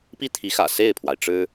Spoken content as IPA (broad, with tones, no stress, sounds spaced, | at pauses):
p i˥˩ t̪ʰ i˧˥ x ä̰˨˩ s e˥˩ ɪ̯ pʰ w a˩ ɪ̯ ʈ͡ʂ ɻ̩˥